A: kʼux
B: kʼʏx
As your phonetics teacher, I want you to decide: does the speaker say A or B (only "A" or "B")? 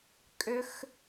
B